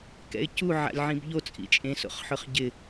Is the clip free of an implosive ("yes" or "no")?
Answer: yes